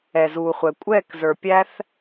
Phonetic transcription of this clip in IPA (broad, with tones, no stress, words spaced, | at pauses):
ɛ˨zuː˨χʷɛ˨ kʷʼɛː˦˨kzə˞˨ pʲæ˦θ